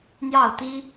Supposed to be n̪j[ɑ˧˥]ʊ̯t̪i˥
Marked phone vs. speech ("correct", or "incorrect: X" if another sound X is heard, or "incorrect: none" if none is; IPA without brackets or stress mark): incorrect: ɑ˥˩